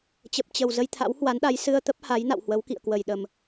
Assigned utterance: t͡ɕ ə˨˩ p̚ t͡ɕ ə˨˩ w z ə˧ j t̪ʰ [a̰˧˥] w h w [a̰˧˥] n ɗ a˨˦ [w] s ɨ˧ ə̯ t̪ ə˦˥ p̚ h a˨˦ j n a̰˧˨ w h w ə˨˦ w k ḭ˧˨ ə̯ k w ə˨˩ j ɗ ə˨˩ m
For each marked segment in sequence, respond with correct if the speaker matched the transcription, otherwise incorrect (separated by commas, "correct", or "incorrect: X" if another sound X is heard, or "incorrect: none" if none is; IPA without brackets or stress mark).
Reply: correct, incorrect: a˨˦, incorrect: j